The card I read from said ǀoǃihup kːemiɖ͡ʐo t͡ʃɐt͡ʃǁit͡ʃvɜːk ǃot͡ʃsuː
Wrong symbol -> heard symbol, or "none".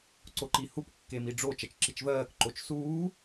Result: none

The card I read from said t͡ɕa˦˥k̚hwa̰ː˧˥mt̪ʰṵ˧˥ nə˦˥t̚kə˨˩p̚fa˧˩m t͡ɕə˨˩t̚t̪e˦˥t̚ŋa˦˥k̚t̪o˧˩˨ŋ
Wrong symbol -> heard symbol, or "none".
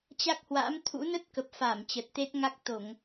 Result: none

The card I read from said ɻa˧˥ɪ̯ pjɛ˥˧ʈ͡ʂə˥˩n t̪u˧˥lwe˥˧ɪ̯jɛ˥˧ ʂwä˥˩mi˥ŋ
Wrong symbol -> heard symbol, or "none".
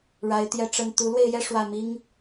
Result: p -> t̪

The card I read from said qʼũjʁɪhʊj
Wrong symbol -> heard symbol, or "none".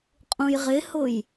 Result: none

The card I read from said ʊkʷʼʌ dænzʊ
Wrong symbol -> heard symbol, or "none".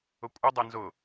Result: d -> dˤ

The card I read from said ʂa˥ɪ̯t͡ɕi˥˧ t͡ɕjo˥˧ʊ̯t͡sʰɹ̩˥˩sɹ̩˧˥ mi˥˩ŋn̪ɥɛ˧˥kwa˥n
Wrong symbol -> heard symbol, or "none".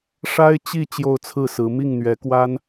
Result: none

